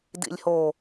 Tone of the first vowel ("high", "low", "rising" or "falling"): low